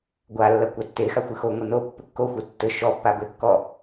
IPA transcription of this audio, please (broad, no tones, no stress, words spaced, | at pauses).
ɡʷalːɐ kʷatːexa xʷɨxoŋʷɨ no pːɘkːoxʷe tːɘ ʃɔpːa bɘkːɔ